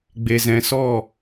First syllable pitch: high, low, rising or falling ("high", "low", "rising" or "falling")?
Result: low